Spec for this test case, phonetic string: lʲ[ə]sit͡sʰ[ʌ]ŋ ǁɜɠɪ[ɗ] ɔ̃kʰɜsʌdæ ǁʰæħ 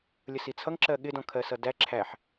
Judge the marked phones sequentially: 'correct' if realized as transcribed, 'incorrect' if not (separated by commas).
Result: correct, correct, incorrect